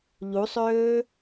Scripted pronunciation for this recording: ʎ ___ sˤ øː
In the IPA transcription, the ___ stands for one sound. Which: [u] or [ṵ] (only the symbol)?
u